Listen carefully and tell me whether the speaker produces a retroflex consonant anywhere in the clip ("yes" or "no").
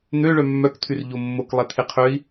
yes